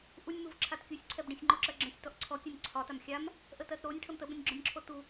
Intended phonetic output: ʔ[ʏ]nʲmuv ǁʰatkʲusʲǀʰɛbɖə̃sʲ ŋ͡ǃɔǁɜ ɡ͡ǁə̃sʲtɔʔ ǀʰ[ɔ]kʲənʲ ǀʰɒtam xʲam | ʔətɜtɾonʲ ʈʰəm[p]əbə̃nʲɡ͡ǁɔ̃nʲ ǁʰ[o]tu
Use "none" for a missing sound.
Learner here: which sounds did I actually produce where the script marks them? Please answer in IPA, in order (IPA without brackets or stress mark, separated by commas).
u, ɔ, t, o